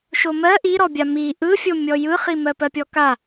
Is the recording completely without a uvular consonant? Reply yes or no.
no